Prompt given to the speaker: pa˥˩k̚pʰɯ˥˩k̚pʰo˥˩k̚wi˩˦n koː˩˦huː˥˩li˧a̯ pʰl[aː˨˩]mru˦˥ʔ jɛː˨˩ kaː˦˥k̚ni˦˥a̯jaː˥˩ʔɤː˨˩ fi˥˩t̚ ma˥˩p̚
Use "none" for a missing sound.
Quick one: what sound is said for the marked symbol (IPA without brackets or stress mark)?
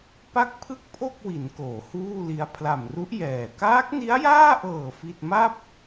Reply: a˨˩